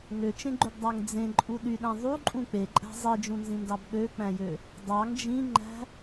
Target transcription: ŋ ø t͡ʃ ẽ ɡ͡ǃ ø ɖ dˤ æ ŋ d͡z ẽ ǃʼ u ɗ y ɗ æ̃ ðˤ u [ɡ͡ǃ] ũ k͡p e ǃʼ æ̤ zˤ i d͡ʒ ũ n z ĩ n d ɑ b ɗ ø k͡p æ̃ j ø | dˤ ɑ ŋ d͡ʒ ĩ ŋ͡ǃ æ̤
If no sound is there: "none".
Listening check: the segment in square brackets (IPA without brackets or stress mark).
ǃʼ